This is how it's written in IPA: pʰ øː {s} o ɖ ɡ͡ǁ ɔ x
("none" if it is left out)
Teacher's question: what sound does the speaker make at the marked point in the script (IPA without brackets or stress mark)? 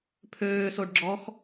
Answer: s